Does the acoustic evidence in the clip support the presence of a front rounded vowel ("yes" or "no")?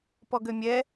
yes